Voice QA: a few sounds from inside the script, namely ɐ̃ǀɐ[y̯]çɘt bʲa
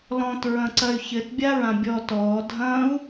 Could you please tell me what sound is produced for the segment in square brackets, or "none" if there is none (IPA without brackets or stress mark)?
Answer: y̯